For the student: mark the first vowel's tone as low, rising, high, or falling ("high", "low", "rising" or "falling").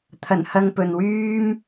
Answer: low